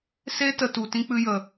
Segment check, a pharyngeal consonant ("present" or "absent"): absent